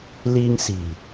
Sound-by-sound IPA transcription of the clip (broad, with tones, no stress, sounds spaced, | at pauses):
l i˧ ŋ s i̤˨˩